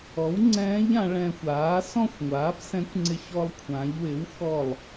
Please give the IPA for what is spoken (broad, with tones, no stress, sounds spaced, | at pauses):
ɔ˩˥ w ŋ͡ǀ ɛ̃ː˧˥ ʎ ã˩˧ ɭ ɛ̃˧ xʷ aː˩˥ s ɔ̃˥˧ xʷ ŋʷ aː˩˥ p s ɛ̃˧˥ kʷ ŋ͡ǀ ɪ˧ ç ɔ˧ lˠ kʷʰ ã˩˧ ʎ w ɪ˩˥ w x ɔ˧˩ lˠ